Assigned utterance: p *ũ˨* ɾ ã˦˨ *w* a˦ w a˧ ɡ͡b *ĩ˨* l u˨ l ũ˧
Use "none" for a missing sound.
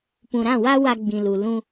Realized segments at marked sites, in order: ũ˨, w, ĩ˨

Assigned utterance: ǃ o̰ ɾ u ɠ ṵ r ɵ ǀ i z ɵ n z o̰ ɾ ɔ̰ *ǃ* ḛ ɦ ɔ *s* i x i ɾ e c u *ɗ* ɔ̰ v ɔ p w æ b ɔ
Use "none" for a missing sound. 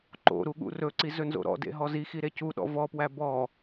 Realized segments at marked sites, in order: d, z, ɗ

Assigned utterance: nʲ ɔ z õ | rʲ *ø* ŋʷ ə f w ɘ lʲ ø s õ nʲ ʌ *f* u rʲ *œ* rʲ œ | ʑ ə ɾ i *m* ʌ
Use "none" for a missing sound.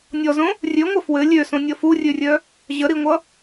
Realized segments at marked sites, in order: ø, f, ø, ŋʷ

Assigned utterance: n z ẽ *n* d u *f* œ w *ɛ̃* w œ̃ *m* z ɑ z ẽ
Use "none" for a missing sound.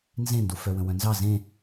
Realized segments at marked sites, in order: n, f, ə̃, n

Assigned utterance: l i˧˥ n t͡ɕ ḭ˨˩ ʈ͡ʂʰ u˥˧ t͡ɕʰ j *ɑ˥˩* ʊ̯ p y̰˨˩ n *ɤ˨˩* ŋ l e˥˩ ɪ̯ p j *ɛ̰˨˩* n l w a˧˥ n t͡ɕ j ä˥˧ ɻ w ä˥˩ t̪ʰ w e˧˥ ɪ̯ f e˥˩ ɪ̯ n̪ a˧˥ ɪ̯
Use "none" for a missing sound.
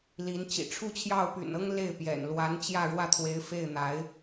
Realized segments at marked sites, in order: ɑ˥˩, ɤ˥, ɛ̰˨˩

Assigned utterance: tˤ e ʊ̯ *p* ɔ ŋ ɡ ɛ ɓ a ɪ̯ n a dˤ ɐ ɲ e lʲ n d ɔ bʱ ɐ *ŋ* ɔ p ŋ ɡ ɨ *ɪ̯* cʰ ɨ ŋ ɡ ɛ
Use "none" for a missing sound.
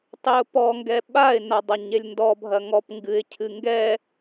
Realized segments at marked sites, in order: p, ŋ, ɪ̯

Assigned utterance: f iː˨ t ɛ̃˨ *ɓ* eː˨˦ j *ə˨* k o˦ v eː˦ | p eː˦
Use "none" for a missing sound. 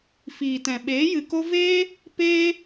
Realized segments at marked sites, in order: ɓ, ɨ˨

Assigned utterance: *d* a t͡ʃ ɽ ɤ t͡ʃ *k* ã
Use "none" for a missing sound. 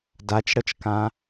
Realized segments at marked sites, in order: d, k

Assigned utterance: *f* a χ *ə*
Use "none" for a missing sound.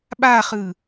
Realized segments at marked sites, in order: ɓ, ɯ

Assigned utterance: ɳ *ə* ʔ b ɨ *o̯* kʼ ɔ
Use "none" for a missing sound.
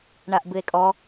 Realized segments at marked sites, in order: a, e̯

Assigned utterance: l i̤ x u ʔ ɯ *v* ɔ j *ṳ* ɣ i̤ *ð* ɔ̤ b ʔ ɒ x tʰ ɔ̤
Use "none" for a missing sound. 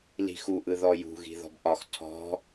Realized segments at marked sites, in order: ð, ṳ, ð

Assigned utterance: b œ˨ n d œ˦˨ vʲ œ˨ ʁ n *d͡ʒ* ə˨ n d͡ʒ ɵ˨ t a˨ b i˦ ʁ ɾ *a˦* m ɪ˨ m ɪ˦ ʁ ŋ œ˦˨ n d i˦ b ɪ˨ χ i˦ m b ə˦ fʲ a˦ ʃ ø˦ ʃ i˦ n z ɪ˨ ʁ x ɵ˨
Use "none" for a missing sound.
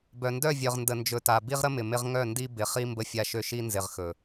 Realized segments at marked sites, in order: d, ə˦

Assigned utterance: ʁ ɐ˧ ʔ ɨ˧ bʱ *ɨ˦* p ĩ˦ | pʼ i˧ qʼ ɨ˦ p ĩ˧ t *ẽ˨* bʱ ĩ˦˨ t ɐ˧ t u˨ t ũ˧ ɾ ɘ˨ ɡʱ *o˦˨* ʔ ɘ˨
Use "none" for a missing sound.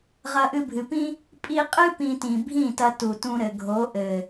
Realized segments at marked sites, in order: ɨ˨, ĩ˨, o˨˦

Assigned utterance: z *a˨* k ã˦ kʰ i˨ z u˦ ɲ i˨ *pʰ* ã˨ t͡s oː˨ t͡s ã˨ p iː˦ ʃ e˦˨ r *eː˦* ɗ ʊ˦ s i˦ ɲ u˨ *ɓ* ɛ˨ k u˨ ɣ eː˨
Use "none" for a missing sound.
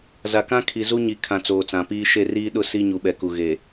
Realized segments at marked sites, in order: a˨, kʰ, iː˦, ɓ

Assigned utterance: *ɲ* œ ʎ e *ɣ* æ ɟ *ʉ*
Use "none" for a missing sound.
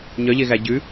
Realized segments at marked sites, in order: ɲ, ɣ, ʉ

